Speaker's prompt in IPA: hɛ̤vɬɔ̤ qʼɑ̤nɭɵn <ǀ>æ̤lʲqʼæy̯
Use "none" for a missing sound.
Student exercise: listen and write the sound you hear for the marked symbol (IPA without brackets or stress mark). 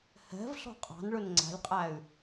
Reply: ŋ͡ǀ